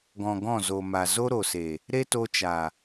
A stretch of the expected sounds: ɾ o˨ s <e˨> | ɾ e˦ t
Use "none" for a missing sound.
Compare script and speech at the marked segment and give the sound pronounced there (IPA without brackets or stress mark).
e˨